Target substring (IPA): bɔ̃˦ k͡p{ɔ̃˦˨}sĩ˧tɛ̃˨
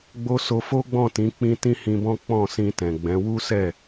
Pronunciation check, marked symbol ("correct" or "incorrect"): correct